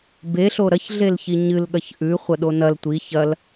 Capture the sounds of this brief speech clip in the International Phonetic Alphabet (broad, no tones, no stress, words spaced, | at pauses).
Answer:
be ɬoɾɐç ɮelçiɲɨl ɠɐçʔʉ χʷɐɗonɐl tʷi çɐl